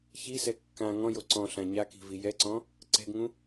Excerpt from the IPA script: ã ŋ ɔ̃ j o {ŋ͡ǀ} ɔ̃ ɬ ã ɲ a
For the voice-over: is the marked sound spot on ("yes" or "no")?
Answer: no